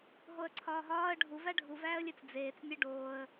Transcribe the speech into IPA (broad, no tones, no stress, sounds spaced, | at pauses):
ɦ o ə̯ ǀʰ ɒː ɦ ɒː ə̯ ɖʱ u v æ ɖʱ u v æː ə̯ lʲ e t͡s d͡z eː t͡s nʲ e ɖ oː ə̯